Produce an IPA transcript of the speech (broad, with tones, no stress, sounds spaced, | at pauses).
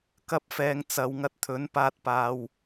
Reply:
k ɐ˧ p̚ f ɛː˨ ŋ t͡s ɐ˨ w ŋ ɐ˧ t̚ t̪ʰ ɵ˨˥ n p aː˧ t̚ p aː˨ w